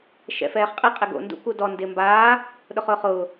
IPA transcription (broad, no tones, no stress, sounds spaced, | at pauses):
ʃ ɛ̰ f ɛː χ qʼ ɪ qʼ ɪ ɡ o̰ n d ṵ k u d ɔ n d ɪ m b aː | ɗ ʊ χ ʊː χ ʊː